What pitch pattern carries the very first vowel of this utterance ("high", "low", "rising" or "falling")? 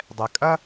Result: low